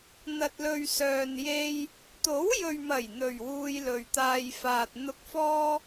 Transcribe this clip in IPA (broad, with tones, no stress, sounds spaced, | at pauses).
n̪ ɐ˨ t̚ l ɵ˨ ɥ s œː˨ n j e˧ j | t̪ o˨˥ w j ɵ˨ ɥ m ɐ˨˩ j n̪ ɵ˨˩ ɥ w uː˧ j l ɵ˨ ɥ t̪ aː˨ j f aː˨ t̚ n̪ ʊ˧ k̚ f ɔː˥